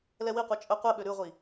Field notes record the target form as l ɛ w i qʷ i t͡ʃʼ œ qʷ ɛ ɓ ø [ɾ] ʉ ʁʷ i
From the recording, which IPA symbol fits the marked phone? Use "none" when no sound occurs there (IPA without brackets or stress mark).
ɾ